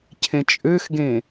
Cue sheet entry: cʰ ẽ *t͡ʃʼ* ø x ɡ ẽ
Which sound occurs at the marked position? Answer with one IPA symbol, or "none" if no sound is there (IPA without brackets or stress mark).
t͡ʃʼ